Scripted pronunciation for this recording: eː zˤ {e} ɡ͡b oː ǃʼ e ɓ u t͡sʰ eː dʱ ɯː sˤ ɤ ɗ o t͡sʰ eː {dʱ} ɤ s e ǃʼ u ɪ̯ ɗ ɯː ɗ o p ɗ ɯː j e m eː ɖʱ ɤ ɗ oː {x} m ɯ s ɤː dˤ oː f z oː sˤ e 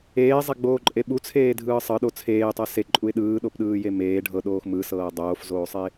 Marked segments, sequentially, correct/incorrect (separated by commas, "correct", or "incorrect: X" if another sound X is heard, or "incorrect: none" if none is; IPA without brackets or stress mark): correct, incorrect: tˤ, correct